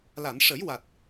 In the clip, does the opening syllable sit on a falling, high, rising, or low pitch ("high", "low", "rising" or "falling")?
low